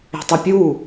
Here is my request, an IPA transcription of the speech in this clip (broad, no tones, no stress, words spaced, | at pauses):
e̤tˤɘpʲu